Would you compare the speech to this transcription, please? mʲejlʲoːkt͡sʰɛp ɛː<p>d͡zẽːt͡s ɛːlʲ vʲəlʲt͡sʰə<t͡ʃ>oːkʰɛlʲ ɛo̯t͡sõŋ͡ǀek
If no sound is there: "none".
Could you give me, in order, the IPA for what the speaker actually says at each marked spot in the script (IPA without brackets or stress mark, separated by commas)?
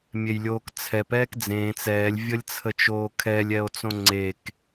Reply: k, t͡ʃ